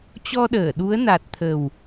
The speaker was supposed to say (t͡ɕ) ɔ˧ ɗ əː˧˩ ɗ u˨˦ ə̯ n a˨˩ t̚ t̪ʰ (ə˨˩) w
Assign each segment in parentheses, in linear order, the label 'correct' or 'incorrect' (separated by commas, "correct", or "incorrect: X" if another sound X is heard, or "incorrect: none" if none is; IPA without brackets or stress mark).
correct, correct